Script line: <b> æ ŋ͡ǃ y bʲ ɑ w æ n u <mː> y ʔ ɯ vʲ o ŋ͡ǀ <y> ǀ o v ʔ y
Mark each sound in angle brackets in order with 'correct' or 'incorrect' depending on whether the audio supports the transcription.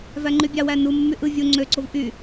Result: incorrect: v, correct, incorrect: ø

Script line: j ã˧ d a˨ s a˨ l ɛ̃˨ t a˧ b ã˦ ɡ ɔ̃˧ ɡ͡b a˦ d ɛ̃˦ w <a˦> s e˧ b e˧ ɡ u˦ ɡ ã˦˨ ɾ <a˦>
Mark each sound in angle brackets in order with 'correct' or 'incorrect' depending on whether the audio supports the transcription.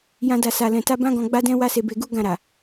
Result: correct, incorrect: a˨

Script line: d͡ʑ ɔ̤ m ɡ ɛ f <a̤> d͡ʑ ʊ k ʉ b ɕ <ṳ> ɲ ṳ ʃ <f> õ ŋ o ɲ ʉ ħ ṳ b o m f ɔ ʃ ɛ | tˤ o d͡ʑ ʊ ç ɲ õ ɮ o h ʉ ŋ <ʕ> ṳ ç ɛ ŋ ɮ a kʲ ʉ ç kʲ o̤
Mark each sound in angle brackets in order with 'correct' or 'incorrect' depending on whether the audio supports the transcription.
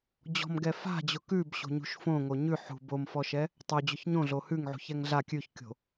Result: correct, incorrect: o̤, correct, correct

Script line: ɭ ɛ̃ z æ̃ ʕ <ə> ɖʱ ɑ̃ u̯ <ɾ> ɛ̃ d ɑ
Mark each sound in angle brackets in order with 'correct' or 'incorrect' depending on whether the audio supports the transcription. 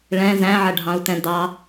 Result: correct, incorrect: t

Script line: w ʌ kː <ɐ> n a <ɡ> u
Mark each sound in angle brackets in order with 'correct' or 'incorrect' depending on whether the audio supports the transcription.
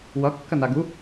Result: correct, correct

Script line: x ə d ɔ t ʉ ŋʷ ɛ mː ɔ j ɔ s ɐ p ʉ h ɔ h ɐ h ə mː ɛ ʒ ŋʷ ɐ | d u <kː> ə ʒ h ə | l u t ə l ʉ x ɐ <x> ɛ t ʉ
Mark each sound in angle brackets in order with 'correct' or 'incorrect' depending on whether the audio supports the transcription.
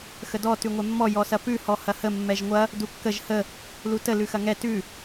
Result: correct, incorrect: ŋ

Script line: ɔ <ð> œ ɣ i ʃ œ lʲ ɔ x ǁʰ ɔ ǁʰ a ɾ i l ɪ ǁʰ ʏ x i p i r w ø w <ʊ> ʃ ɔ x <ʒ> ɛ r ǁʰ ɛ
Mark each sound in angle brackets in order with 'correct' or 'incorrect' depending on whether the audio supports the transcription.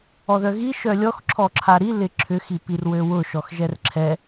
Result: correct, correct, correct

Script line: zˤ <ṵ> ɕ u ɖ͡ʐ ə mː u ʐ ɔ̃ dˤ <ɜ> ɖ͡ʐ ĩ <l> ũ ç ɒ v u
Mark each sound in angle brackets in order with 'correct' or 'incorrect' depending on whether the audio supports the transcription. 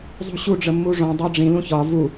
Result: incorrect: ṳ, correct, correct

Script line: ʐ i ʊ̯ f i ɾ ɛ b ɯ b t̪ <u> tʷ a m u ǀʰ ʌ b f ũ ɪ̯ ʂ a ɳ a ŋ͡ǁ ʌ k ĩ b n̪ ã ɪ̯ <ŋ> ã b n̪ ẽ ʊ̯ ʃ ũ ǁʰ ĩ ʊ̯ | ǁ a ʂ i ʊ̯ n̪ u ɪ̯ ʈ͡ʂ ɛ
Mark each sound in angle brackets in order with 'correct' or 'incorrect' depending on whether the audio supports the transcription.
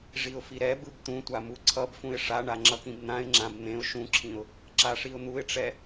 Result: incorrect: ũ, incorrect: ŋ͡ǁ

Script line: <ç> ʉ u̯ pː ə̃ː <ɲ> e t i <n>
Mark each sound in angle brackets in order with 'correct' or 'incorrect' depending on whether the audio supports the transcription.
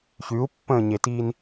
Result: correct, correct, correct

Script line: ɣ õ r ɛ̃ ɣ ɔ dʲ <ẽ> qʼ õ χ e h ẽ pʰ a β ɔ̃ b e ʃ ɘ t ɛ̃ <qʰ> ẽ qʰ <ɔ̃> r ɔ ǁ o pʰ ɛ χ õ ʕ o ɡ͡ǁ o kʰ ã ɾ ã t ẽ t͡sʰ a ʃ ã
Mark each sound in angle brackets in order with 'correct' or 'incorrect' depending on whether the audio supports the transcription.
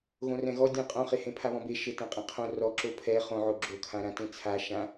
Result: correct, incorrect: qʼ, incorrect: õ

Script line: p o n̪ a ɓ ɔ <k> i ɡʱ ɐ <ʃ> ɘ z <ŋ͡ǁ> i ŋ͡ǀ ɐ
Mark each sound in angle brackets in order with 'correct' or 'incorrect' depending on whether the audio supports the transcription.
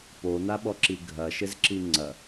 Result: incorrect: ǁ, correct, incorrect: ǁ

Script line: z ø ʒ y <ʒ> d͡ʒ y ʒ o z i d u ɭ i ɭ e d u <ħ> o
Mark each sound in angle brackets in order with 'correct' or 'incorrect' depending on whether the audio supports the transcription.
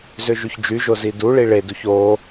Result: incorrect: ç, incorrect: ç

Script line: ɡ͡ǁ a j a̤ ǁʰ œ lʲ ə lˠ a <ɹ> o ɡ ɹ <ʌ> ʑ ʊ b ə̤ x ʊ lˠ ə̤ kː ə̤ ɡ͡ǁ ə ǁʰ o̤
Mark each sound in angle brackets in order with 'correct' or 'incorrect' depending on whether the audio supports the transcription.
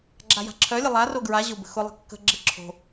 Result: incorrect: r, incorrect: a

